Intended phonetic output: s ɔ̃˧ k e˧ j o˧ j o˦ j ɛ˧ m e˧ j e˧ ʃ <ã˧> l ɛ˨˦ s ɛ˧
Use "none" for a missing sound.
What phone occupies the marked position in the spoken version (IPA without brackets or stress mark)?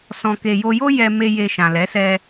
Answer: ã˨